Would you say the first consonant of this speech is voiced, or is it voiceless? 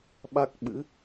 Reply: voiced